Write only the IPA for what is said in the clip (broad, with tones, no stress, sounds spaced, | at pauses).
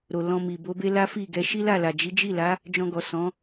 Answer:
ɾ o˨ l ɔ̃˧ m i˨ b o˨˦ b e˦ l a˦ f i˦˨ ɡ ɛ˧ ʃ i˦ l a˦˨ l a˨ d͡ʒ i˨˦ d͡ʒ i˦˨ l a˨˦ | d͡ʒ ɔ̃˧ ɡ ɔ˨ s ɔ̃˨˦